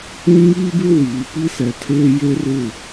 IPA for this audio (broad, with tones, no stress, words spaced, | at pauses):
ũ˦ŋiː˦bɪ˦ wiː˨˦ pi˦sɛ˨tʰeː˦ je˦rɪ˦˨